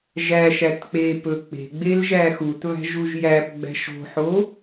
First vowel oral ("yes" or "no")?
yes